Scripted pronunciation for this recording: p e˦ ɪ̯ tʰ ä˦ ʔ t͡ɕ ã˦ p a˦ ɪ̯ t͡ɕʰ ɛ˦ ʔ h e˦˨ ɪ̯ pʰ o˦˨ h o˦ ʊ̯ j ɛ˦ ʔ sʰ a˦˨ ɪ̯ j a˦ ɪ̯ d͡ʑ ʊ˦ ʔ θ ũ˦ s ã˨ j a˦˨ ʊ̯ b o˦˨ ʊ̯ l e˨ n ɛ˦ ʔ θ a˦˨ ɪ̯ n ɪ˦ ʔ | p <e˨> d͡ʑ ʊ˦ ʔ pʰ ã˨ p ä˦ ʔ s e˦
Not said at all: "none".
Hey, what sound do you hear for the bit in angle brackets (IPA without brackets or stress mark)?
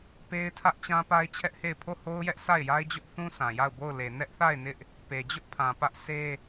e˨